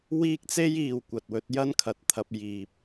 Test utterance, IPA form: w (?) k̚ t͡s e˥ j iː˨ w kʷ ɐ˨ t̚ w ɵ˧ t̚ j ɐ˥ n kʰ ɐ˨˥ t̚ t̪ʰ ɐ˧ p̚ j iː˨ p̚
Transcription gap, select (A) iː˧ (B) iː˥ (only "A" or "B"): B